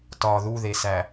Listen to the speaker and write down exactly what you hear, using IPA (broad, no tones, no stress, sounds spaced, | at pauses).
t ɒ ð u ð e s æ